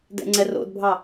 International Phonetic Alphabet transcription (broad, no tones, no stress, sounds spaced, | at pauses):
d ɛ̰ ŋ͡ǀ ɛ r o̰ d bʱ ɑ